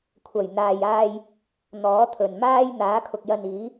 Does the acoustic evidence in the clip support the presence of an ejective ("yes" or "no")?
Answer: no